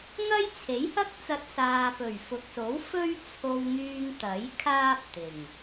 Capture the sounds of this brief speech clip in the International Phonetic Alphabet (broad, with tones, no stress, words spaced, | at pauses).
ŋɐ˥j t͡sʰe˨˥jhɐ˥k̚t͡sɐ˧t̚ saː˨pɵ˨˩ɥfʊ˨k̚so˨˥w fɵ˥ɥt͡sʰo˧wŋyː˧ŋ t̪ɐ˨˥j kʰaː˥p̚t̪ɪ˨˩ŋ